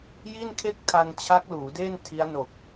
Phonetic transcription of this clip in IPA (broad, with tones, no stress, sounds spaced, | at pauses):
j i˥˩ n kʰ e˥˩ k̚ tʰ a˧ n t͡ɕʰ a˦˥ k̚ l uː˩˦ d eː˥˩ n tʰ i˦˥ a̯ n o˨˩ k̚